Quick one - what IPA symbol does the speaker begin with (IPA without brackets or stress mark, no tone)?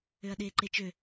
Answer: ø